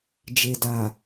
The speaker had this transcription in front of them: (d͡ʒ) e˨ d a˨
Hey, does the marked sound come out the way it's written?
yes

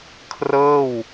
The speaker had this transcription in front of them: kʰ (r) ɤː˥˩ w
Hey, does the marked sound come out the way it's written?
yes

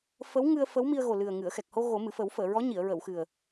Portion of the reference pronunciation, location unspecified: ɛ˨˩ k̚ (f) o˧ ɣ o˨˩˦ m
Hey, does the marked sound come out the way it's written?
no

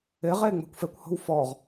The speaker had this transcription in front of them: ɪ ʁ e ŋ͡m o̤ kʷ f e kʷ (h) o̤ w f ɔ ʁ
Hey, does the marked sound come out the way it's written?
yes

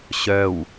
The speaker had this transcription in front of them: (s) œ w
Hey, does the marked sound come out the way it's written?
no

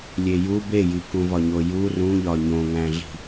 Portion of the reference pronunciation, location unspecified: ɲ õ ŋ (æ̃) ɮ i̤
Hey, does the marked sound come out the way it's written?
yes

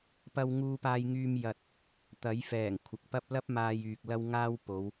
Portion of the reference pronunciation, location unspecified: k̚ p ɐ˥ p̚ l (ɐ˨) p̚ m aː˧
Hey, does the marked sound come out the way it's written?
no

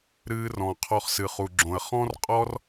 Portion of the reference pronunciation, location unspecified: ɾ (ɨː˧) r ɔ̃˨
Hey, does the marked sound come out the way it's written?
yes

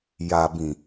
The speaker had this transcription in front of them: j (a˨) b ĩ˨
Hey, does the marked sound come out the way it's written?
yes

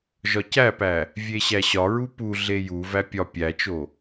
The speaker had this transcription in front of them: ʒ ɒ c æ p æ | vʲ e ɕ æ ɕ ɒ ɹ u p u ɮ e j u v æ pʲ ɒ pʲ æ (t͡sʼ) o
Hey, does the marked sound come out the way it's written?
no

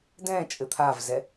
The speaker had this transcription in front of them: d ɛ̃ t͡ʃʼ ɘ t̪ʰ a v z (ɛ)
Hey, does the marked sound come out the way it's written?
yes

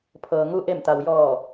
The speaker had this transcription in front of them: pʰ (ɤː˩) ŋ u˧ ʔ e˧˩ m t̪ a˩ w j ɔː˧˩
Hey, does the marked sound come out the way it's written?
yes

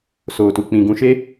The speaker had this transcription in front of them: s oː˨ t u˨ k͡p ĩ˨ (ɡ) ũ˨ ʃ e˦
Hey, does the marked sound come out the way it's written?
yes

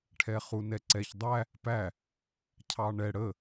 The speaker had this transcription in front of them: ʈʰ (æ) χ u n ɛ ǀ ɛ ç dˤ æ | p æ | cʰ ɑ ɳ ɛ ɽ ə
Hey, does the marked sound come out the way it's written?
no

